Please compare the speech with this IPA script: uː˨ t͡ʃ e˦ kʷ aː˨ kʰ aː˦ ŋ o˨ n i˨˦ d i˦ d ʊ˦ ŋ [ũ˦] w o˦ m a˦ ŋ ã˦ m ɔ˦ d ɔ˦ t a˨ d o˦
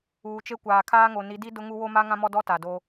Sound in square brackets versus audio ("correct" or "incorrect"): incorrect